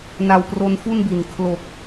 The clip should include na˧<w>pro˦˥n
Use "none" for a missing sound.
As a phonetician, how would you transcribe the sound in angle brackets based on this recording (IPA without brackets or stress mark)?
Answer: w